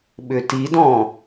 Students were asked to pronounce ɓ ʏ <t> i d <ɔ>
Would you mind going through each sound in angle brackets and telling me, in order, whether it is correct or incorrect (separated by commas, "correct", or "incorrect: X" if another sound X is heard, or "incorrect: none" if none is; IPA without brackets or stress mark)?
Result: correct, incorrect: ɔ̃